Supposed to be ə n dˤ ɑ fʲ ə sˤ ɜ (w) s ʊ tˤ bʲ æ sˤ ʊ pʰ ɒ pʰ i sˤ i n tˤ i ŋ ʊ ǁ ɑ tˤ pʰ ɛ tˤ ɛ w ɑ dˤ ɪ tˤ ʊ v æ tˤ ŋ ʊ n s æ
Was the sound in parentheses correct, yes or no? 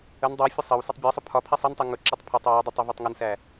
yes